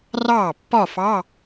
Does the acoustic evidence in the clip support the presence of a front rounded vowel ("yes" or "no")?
no